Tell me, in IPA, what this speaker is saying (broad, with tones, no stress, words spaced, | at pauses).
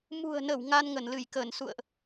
mṳ˨˩ə̯nə˧˩w ŋa˧nŋə˧˩nlɨ˧˩j kəː˧˩nsṵ˧˨ə̯ʔ